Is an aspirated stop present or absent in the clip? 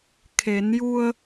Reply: present